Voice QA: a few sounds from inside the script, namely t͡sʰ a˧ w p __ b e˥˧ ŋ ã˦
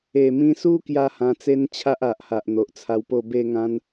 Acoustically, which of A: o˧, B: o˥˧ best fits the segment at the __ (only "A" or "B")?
B